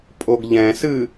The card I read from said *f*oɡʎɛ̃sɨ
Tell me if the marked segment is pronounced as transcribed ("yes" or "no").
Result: no